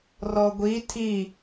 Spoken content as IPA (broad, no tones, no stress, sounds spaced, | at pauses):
r ɔ ɡʷ i tʰ i